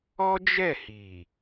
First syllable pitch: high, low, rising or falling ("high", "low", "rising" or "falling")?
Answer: high